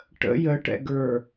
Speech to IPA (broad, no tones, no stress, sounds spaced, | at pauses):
ʈ ə̰ j ə ʈ ɛ̰ ɡ ə˞